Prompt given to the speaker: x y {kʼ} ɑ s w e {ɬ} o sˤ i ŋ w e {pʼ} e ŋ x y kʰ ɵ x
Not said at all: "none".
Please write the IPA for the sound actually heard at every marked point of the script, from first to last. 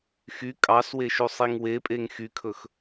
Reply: kʼ, ʃ, pʼ

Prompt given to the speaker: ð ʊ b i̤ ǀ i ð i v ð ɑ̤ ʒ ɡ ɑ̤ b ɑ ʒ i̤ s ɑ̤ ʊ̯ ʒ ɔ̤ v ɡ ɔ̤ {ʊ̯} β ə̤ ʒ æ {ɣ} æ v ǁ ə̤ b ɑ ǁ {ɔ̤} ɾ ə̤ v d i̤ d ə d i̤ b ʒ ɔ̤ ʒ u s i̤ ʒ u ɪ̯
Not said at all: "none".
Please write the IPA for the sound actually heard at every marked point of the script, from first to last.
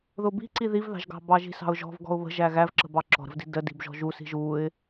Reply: ʊ̯, ɣ, ɔ̤

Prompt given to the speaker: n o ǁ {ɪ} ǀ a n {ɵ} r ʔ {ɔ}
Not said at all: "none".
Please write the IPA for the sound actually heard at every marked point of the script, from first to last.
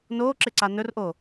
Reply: ɪ, ɵ, o

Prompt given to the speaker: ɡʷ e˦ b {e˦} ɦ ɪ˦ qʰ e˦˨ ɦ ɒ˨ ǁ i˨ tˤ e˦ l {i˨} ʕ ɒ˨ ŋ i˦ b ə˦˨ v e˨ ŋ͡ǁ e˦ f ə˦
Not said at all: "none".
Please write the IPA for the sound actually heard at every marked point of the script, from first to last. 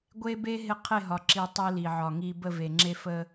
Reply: e˦, i˨

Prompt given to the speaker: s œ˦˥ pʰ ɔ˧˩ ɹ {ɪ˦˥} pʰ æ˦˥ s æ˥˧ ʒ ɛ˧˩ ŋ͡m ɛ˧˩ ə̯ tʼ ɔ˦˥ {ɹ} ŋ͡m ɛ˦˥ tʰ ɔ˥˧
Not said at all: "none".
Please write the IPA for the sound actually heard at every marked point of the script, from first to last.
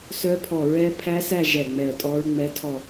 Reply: ɛ˦˥, ɹ

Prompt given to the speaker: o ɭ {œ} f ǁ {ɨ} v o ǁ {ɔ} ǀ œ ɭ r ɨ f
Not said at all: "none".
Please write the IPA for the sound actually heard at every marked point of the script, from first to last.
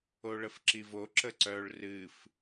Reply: ə, i, ə

